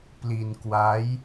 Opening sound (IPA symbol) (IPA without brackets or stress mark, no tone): p